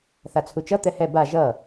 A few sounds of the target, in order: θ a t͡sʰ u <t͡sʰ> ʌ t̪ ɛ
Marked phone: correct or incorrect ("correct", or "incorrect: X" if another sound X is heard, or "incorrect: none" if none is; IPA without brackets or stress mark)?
incorrect: t͡ʃ